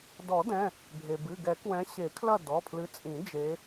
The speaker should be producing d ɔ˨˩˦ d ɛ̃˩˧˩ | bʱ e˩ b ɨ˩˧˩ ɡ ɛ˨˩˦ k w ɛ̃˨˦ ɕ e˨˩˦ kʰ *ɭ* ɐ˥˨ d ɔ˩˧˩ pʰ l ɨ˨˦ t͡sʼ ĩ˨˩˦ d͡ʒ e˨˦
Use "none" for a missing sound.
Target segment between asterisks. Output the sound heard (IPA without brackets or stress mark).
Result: l